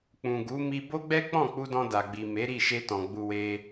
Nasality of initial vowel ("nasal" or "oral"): nasal